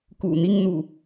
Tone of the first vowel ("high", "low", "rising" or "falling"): low